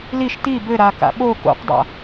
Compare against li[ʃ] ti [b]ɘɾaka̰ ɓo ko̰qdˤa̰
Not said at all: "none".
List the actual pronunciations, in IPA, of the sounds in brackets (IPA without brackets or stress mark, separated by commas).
ʃ, b